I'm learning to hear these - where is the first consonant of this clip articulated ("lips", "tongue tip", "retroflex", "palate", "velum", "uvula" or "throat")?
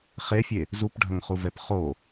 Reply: uvula